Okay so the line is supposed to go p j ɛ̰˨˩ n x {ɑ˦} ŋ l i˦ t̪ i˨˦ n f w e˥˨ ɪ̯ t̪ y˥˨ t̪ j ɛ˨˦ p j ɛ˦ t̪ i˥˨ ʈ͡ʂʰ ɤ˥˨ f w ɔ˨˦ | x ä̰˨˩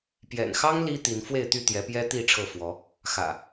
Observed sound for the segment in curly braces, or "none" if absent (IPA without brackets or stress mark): ɑ˦